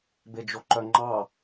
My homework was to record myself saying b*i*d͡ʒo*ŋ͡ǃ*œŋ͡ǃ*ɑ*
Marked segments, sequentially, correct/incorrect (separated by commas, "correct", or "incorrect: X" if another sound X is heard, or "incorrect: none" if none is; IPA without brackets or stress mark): incorrect: e, incorrect: ǃ, correct